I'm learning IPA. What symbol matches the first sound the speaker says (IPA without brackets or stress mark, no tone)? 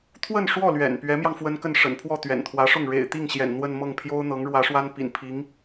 t̪ʰ